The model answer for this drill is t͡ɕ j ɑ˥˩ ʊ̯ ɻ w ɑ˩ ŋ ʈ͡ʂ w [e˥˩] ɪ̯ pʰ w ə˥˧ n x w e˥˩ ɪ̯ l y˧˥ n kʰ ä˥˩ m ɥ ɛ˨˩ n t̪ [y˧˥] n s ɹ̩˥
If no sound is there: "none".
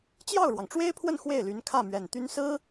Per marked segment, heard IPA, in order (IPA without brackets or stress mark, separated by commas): e˥, y˥